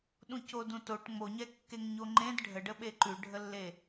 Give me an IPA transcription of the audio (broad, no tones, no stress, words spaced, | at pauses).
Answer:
ɗũcodũtoʈ ŋ͡moɲɛ kːeŋɲoŋ͡ǃẽd ɖʱəɖəɓe ǃʉɖʱəlːe